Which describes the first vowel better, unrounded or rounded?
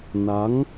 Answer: unrounded